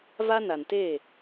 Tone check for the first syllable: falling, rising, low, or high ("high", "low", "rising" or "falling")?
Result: high